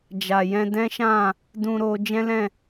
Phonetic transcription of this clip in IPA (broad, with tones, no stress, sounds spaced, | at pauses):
d͡ʒ a˨ j ɛ̃˧ d ɛ̃˦ ʃ ã˦˨ | d ũ˧ ɾ o˧ d͡ʒ ɛ̃˦ l ɛ̃˦˨